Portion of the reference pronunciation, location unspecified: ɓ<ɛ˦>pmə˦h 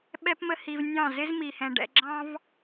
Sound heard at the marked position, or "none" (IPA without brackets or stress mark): ɛ˦